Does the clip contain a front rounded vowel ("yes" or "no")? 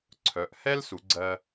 yes